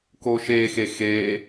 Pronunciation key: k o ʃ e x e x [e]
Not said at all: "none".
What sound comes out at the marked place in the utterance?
e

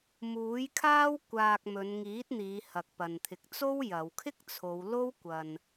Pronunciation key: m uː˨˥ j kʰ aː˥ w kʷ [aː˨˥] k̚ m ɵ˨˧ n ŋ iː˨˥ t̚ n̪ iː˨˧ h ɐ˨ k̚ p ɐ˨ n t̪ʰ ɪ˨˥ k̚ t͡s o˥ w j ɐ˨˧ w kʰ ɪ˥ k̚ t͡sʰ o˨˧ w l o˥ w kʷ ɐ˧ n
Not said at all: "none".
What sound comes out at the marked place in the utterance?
aː˧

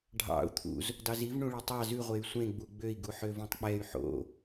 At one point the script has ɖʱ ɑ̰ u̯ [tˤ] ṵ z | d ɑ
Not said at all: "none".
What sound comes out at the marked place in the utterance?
t̪ʰ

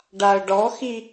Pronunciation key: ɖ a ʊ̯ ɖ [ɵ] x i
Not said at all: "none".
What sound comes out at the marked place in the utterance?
ɔ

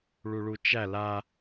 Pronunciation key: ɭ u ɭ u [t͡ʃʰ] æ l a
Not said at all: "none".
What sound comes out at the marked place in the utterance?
t͡ʃ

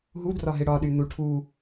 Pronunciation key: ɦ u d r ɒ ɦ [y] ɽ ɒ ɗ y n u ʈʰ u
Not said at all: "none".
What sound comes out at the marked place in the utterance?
ɪ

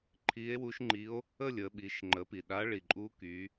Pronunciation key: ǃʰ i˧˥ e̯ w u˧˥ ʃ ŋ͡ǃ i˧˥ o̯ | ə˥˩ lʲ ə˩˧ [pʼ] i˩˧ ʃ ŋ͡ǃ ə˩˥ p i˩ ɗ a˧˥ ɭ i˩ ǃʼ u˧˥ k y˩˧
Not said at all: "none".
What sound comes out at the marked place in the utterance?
ɓ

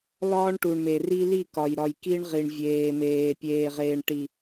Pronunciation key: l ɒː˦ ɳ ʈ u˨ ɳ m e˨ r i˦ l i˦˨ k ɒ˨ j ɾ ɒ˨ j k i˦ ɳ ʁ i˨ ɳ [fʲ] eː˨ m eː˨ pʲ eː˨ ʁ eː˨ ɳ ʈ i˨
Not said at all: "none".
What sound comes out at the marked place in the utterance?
vʲ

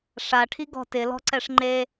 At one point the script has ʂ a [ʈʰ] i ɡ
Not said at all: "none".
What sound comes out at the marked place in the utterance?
ʈʰ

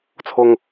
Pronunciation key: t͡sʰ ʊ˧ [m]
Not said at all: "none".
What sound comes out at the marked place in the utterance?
ŋ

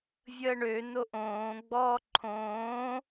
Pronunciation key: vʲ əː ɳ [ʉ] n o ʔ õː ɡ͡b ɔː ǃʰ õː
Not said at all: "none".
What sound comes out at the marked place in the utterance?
ø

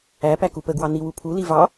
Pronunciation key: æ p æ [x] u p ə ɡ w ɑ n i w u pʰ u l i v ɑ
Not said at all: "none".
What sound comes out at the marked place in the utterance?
k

